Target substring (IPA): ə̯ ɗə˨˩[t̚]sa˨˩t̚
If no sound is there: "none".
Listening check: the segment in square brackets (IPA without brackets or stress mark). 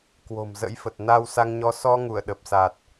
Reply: p̚